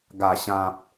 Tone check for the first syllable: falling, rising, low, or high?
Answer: low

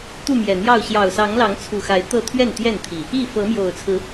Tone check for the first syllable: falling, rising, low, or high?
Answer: falling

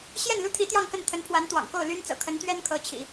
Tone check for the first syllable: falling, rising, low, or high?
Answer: falling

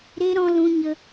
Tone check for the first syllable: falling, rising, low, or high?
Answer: high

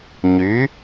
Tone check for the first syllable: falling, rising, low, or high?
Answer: rising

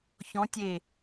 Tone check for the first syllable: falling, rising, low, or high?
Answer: rising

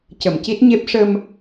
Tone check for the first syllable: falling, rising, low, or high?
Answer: low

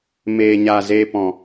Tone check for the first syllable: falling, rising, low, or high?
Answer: low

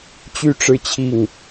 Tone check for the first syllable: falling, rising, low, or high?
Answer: falling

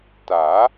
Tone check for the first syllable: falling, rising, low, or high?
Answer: rising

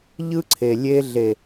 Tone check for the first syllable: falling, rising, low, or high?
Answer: high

